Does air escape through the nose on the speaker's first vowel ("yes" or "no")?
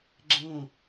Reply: yes